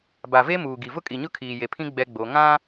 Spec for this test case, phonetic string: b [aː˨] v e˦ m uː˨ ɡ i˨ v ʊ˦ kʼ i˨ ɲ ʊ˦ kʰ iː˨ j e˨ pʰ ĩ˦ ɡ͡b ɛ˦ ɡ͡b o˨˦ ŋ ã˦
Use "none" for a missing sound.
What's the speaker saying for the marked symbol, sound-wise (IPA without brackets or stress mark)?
a˨